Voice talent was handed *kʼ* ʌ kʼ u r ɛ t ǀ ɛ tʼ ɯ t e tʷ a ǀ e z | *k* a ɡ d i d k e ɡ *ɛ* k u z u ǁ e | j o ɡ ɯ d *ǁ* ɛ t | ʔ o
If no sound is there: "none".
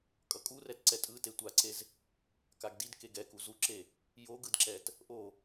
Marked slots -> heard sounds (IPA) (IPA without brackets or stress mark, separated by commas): kʼ, k, ɛ, ǁ